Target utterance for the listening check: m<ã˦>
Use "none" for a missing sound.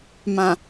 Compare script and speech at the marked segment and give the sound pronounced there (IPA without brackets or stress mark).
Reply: ã˨